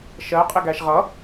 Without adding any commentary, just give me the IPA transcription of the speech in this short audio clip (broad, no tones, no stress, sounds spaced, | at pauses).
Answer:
ʃ ɜ qʼ ɪ ɡ æ ʃ ʁ ʌ